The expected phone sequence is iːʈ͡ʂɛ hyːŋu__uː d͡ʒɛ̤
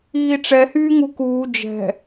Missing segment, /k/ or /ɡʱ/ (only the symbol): k